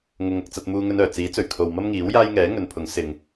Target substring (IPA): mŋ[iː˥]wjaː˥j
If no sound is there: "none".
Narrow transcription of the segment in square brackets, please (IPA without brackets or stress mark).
iː˨˥